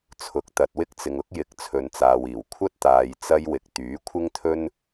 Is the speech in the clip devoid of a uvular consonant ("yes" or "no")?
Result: yes